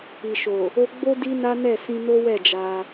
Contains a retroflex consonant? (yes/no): no